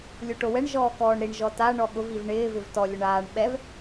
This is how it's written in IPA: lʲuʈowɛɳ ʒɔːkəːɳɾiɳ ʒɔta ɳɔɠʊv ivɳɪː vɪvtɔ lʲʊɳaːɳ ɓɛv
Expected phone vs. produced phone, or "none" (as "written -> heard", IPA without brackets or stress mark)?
əː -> ɔː